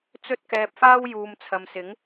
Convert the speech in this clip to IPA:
t͡sɵ˥t̚kɛː˧p̚faː˥w juː˨mt͡sʰɐ˨msɪ˨˥ŋ

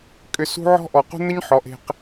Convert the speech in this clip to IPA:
kʼʏ˧sṳ˦ ʕɔ̤˦ʔɔ˨qṳ˦n̪ə˦ɲ ħɔ˨˦ʔe̤˧q

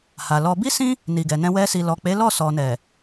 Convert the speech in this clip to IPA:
ha˨lɔ˧ bi˦sĩ˦ | ni˨ɡɛ˨nɛ̃˧ wɛ˧si˨lɔ˨ k͡pe˨˦ lɔ˦˨sɔ˨nɛ˨

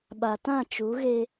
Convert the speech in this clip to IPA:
ɓa˨tã˦˨t͡ʃu˨˦ɣe˦

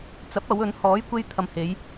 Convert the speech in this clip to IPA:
t͡sɐ˨˥p̚ɐ˨˧w ɵ˨˧nhɔː˨˥jkʷe˧j t̪ʰɐ˨mhe˨˧j

